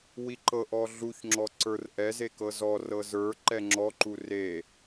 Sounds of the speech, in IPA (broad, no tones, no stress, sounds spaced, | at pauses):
w i ǃ ɤ ʔ ɔ ɮ u ç ŋ͡ǁ ɔ ǀ ə˞ r ʔ ɛ z e k ɤ z ɔ r ɤ z ə˞ ǃ ɛ ŋ͡ǁ ɔ ǃ u r e